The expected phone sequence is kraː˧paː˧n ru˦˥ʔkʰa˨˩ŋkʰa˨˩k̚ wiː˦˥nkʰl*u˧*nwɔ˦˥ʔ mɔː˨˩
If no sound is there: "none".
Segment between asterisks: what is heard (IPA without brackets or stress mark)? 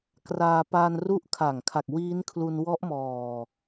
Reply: u˧